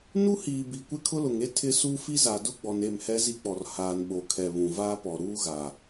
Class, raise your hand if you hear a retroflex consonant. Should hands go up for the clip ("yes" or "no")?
no